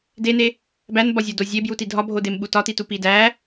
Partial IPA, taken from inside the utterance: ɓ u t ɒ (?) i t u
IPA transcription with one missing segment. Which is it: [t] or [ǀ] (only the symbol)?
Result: t